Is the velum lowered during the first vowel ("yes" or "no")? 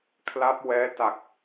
no